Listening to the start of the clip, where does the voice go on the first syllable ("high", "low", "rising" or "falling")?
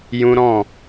high